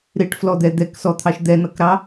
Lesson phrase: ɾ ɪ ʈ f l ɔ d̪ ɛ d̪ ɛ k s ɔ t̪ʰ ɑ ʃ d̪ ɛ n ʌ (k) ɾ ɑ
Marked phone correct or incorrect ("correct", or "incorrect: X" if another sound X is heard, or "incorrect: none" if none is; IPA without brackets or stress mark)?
correct